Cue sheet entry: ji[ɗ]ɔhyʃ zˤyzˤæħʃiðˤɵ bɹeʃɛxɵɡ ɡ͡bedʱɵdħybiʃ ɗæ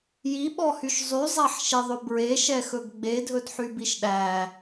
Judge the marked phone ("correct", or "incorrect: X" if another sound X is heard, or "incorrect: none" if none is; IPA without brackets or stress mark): incorrect: ɓ